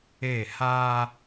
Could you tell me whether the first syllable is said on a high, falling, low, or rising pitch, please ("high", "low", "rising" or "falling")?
falling